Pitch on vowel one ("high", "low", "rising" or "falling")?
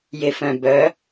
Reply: low